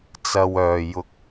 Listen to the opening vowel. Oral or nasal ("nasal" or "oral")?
oral